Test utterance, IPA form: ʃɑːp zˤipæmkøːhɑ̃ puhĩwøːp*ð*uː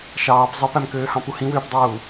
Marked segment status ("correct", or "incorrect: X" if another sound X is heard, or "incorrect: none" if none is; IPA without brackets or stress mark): incorrect: dˤ